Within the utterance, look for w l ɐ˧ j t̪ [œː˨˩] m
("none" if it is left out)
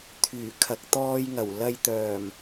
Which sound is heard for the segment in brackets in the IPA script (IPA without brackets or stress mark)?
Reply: œː˨˩